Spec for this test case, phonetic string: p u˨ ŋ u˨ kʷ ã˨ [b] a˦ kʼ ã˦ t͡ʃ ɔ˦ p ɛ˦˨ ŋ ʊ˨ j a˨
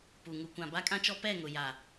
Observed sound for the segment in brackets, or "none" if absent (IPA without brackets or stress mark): b